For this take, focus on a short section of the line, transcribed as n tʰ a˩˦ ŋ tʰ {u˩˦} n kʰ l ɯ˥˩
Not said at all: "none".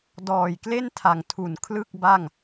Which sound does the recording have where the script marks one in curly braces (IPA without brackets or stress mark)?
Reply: u˩˦